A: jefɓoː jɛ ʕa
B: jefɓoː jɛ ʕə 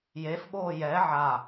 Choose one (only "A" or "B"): A